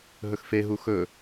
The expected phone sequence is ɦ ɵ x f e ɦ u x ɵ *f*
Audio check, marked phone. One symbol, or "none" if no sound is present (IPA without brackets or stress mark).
none